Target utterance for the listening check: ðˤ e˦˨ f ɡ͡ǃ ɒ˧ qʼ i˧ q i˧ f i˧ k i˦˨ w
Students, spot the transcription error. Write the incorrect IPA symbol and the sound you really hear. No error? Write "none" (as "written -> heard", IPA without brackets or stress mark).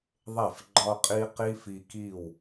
none